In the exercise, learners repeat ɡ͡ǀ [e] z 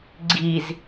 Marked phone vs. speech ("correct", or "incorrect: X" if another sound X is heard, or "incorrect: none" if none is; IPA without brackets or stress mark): incorrect: i